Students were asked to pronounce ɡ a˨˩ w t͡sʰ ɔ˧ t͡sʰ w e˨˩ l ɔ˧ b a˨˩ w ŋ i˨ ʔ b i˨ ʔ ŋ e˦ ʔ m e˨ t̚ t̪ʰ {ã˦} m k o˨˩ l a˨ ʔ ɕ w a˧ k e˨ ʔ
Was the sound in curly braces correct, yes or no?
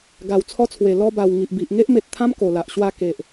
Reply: yes